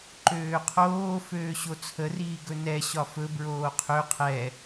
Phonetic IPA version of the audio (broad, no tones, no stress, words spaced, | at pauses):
ǃøːqʰoː føːɕot͡sʰə riːɡɵnɛ ɕɒfɵ bɹoːqʰø qʰɛ